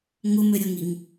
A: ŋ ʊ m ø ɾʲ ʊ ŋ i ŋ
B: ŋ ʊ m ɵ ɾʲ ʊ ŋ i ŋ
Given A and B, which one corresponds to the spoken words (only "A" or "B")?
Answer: A